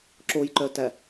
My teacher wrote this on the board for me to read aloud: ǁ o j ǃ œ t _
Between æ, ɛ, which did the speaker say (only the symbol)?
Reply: æ